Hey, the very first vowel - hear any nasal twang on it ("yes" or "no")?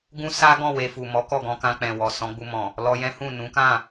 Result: yes